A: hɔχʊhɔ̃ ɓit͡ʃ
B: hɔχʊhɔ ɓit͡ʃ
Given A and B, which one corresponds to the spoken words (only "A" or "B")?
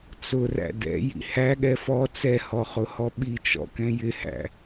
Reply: B